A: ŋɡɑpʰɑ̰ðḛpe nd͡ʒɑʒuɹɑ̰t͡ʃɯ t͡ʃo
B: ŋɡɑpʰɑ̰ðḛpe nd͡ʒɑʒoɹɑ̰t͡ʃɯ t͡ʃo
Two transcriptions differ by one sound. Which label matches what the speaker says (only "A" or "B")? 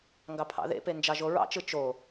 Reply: B